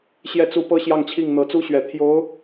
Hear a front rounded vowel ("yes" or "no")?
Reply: no